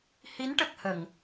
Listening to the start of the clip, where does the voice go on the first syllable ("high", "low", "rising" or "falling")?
rising